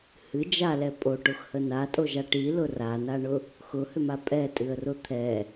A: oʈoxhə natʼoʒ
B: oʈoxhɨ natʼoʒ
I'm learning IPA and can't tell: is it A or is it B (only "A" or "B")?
A